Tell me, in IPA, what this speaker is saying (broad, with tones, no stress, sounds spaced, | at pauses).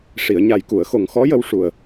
ʂ i˨˩˨ ə̯ ɲ a˨˩ j k u˨˩˨ ə̯ x o˨˩ ŋ x ɔ˧˥ j ə˧ w ʂ u˨˩ ə̯